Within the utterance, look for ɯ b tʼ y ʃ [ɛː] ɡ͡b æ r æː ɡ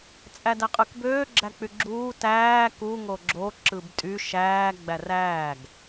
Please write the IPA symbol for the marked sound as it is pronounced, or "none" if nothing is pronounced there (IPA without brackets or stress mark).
æː